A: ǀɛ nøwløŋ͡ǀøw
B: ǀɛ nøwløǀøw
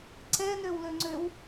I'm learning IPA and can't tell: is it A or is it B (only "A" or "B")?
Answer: A